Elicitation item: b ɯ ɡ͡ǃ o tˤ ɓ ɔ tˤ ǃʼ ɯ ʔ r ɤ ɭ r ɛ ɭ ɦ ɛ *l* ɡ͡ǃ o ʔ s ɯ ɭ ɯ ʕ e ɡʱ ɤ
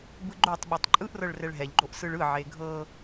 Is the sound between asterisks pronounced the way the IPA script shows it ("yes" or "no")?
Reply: no